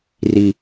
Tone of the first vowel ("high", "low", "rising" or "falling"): low